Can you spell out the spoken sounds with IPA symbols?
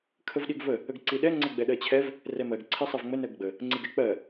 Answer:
kʰ ə v ɗ i ɡ v ə | ə ɡ ǀ i ɗ ɛ ŋ͡ǀ ə ɡ͡b ɛ ɗ ɜ t͡ɕʰ ɛ v | r ɛ m ɜ ɡ ǀʰ i sˤ ɛ v ŋ͡m ə n ɜ ɡ ɡ͡b ə | ŋ͡ǀ i ɡ ɛ k͡p ɜ

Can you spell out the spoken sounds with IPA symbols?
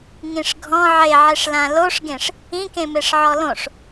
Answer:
ŋ ĩ ʂ ɡʱ ɔ̃ ʕ e ʕ e ʂ l ã l o ʂ ɡ ẽ ʂ | ĩ k ẽ m e ʂ ʕ ɔ l õ ʂ

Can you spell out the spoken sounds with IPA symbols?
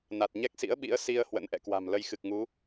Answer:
n a˨˩ t̚ ɲ ɛ˦˥ k̚ s ḭ˧˥ ə̯ ɓ ḭ˧˥ ə̯ s i˧ ə̯ h w ə̰˧˥ n ʔ ɛ̰˧˨ k w a̤˨˩ m l ə˧ j x ɨ˨˩ k̚ ŋ u˨˦

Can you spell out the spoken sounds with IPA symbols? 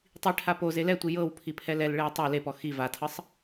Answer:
tˤ i ʈʰ a p o z e l ɛ tʷ i j ɤ w pʰ i pʰ ɛ l ɛ l ɭ e w tˤ o l e p ɔ x i v a tʰ ɤ sˤ

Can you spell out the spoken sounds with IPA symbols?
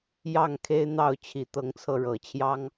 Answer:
j ɑ˥˨ ŋ kʰ e˦ ɪ̯ n̪ ɑ˥˨ ʊ̯ t͡ɕʰ i˨˦ t̪ ɤ˨˦ ŋ t͡sʰ ɤ˧ ɻ ɤ˨˩ t͡ɕʰ j ɑ˦ ŋ

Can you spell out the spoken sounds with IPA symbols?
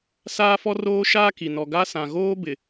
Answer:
s aː˦ f ɔ˦ r oː˦ ʃ aː˦ k i˨ n ɔ˨ ɡ a˦ s ã˨ ɣ oː˦ b ɪ˨

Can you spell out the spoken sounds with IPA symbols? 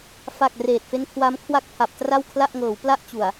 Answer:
f a˨˩ k̚ r eː˨˩ t̚ f e˦˥ n kʰ w a˦˥ m kʰ w a˥˩ k̚ pʰ a˨˩ p̚ t r a˥˩ w kʰ l a˥˩ ʔ ŋ ɤː˩˦ w p l a˥˩ ʔ t͡ɕ u˨˩ a̯

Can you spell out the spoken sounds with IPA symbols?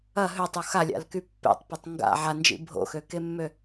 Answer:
ɐ ɦ ø tˤ o x a lʲ a̰ l k y pː ḛ tˤ p ɐ tˤ ŋ ɡ a̰ ʕ a n d͡ʒ ḭ bʱ o̰ x ø k e mː ø

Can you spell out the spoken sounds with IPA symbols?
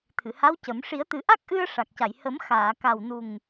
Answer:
t̪ʰ ɨ˨˩˨ h a˧˥ w c ə˨˩˦ m ʂ i˨˩˦ ə̯ t̪ ɨ˨˩˦ ʔ a˦˥ k̚ ʔ ɨ˧ ə̯ ʂ a˨˩ k̚ c a˨˩˨ j h ə˨˩˦ m x aː˨˩˨ k a˨˩ w n u˨˩ ŋ

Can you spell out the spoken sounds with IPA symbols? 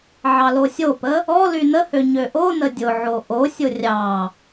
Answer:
ʕ ɑ l o sʲ o p ə | ɔ l y n ə h ø ɲ ø ʔ o n ə dʲ ʊ ʕ o ʔ o sʲ ʊ rʲ ɑ

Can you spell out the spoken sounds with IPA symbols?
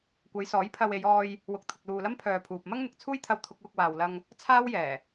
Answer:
kʷ ɐ˨˧ j s ɔː˨˥ j pʰ ɐ˧ w e˨˧ j ɔː˧ j | w ʊ˨ k̚ t̪ʰ ʊ˨ k̚ l uː˨ l ɐ˥ m pʰ œː˨ pʰ uː˨ p̚ m ɐ˥ ŋ n̪ ɪ˨ k̚ t͡sʰ uː˥ j t̪ʰ ɐ˧ w t̪ʰ ʊ˧ k̚ w ʊ˧ k̚ w aː˨ w l ɐ˧ ŋ | t͡sʰ aː˥ w j ɛː˨˩

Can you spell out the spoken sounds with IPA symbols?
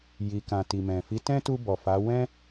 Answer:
j i˨ k ã˨ t i˨ m ɛ̃˨ f i˨˦ t ɛ̃˦ t u˧ b ɔ˨ f a˨˦ w ɛ̃˦

